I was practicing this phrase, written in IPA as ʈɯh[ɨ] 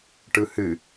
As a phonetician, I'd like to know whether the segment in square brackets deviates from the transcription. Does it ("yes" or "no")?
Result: no